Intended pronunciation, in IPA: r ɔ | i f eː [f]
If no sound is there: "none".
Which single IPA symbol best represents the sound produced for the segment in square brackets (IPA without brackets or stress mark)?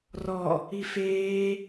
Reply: none